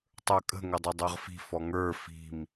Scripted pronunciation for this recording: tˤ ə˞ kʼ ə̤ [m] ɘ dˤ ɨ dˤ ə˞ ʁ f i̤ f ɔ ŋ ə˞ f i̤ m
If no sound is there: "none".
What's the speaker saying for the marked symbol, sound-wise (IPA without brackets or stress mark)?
ŋ